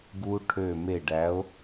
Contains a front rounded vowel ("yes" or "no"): yes